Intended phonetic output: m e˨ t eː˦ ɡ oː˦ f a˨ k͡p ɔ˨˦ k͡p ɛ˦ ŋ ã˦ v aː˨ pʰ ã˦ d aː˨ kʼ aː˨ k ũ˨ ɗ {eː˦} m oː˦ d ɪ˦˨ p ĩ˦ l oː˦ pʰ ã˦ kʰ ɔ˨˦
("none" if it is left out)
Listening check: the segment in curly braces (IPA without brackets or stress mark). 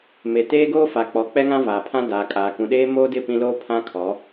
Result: eː˦